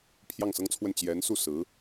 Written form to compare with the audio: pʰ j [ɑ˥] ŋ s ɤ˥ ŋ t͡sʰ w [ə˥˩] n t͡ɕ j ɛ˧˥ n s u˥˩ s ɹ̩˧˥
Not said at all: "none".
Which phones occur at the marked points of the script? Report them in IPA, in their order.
ɑ˥˩, ə˥˩

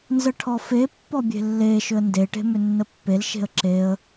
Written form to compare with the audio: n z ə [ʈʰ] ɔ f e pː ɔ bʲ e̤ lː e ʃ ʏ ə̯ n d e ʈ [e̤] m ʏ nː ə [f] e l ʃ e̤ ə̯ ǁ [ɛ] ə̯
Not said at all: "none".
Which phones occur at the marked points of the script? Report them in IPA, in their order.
ʈʰ, e̤, pː, e

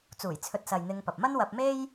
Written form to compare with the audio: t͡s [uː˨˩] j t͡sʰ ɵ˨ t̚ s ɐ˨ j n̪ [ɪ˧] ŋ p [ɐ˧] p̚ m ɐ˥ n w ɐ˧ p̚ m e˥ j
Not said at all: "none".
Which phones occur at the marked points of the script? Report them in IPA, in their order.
uː˨˩, ɪ˧, ɐ˨

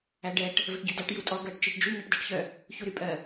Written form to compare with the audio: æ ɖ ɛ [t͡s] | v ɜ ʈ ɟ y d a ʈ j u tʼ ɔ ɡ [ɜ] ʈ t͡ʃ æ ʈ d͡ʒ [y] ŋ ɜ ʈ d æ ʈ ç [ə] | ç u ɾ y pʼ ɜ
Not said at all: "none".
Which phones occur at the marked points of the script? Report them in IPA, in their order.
ʈ, ɜ, y, œ

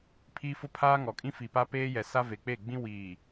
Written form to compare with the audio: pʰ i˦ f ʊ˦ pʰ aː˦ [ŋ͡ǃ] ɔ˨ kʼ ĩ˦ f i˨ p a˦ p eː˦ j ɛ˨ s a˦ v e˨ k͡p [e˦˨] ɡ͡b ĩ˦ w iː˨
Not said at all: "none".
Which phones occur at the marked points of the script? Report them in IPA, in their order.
ŋ, e˦˨

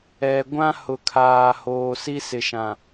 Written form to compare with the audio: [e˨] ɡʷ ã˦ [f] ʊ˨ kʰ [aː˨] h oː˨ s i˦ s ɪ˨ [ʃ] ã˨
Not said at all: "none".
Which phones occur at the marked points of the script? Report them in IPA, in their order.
ɛ˨, h, aː˨, ʃ

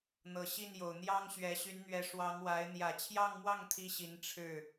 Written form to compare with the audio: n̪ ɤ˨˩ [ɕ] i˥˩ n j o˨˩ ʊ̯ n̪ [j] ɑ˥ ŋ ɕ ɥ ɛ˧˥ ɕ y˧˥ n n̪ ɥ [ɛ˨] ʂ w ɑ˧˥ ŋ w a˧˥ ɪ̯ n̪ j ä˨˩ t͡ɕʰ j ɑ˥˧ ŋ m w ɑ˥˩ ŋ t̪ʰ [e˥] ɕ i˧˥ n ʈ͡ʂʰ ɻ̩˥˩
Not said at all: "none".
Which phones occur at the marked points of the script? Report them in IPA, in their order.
ɕ, j, ɛ˧˥, i˥

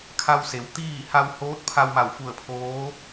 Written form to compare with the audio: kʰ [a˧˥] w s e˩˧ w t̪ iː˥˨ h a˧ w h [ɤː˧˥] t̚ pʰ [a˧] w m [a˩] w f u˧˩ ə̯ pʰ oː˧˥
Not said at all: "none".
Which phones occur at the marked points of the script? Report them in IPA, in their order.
a˧, oː˧˥, a˧, a˧˩

